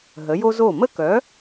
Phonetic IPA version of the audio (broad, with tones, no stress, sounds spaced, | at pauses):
ɦ ə˩˥ j o˥ z o˥˩ m ə˥ k œ˩˥